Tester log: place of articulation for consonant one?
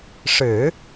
retroflex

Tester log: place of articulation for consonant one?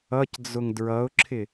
palatal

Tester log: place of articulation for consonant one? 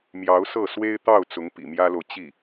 labial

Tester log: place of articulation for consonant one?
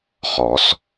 uvular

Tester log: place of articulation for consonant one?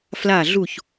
labial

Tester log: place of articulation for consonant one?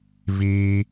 labial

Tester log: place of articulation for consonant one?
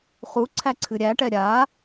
uvular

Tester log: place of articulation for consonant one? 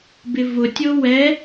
labial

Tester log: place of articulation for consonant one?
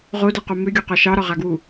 uvular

